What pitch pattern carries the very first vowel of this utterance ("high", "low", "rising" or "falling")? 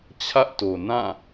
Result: high